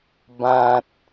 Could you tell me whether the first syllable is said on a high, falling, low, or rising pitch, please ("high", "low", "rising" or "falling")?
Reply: low